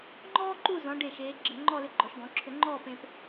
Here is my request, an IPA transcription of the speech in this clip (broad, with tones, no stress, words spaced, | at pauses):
ŋ͡ǃɔː˥ǃu˥˧ zɔ̃˩˧ ɖe˧˩ʃeː˩˧ɡ͡ǁə˧˩ ŋ͡ǃɔ˥˧lʏ˧ɡ͡ǃɔ˩˧ʃɡɔ̃˩˧ ǁʰʏ˧ŋ͡ǃɔː˥˧pẽ˧p